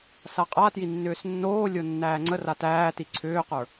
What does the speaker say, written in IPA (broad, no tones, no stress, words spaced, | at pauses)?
saqʼatji nːʏːsnːoːlʲo nːæːŋ͡ǀəra tæːti ǀʰʏːqə˞